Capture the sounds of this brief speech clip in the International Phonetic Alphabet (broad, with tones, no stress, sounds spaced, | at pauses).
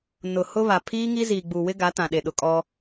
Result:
n ʊ˨ h ʊ˦ β a˨ pʰ iː˦ ŋ i˦ z iː˨ ɡ͡b u˨ w ɪ˦ ɡ a˨˦ t ã˨ ɗ e˨ ɗ ʊ˨ kʼ ɔ˦